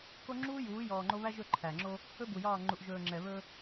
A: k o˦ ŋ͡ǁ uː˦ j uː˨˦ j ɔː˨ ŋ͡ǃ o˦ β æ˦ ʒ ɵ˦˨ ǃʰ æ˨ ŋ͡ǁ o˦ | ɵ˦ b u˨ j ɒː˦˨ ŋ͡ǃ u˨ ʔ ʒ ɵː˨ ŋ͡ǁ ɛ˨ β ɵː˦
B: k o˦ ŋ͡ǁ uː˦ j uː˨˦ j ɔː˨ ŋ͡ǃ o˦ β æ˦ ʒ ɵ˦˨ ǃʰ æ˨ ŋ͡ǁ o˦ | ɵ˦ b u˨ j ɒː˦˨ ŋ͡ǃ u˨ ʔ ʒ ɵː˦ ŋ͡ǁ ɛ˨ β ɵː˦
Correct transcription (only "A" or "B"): A